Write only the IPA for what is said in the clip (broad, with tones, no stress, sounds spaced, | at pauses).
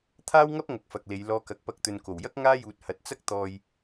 t̪ʰ aː˥ w ŋ ɐ˥ p̚ ŋ ɐ˨˥ k̚ f ɐ˨ k̚ l e˨˧ j l ɔː˧ k ɐ˨˥ k̚ p ɐ˧ k̚ t̪ ɵ˨ n k o˨˩ w j ɐ˥ k̚ ŋ aː˥ j uː˨ t̚ h ɐ˨ t̚ t͡s ɐ˥ k̚ t̪ ɔː˧ j